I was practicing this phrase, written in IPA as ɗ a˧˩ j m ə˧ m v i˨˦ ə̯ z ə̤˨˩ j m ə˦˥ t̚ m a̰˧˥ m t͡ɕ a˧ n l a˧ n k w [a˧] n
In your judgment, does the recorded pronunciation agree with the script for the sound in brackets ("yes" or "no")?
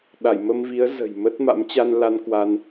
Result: yes